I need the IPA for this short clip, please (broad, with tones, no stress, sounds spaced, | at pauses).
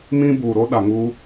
m ĩ˦ b uː˨ ɾ o˦ ɗ a˨ ŋ uː˦